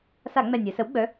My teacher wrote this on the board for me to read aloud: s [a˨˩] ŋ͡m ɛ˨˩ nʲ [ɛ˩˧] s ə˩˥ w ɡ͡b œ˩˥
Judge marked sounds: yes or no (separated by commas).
no, yes